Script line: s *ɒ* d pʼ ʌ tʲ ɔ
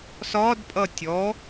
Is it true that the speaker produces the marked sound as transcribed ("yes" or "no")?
yes